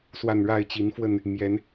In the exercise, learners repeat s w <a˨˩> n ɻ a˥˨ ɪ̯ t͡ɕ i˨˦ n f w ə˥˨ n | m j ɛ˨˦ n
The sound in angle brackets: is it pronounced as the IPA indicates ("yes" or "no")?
yes